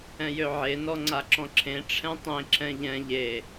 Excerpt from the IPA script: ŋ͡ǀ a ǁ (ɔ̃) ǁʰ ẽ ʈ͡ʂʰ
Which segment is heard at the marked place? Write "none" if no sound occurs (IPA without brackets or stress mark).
ɔ̃